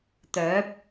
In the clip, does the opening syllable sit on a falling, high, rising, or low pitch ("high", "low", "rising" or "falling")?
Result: rising